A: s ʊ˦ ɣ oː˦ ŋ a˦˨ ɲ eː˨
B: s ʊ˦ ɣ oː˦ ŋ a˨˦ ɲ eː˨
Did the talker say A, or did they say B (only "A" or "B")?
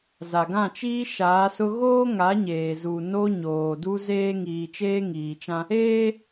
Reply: B